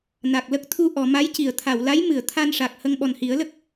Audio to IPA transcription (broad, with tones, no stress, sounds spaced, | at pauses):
n a˨˩ k̚ l ə˦˥ k̚ t̪ʰ u˧ ʔ ɔ˨˩˨ m a˧˥ j c i˨˩˨ ə̯ t̪ʰ a˨˩˨ w l a˧˥ j m ɨ˨˩˨ ə̯ t̪ʰ a˧ n ʂ a˨˩ k̚ h ə˧ ŋ ɓ ɔ˨˩ n h i˨˩˦ ə̯ l ə˦˥ k̚